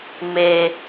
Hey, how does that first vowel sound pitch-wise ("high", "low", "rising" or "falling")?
low